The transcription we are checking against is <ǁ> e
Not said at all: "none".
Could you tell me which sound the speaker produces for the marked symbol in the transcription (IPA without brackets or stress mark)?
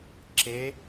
ǁ